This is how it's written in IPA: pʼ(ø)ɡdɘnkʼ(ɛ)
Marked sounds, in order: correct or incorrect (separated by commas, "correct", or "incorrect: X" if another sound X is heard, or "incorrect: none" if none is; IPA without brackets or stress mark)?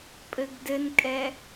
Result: incorrect: ɘ, correct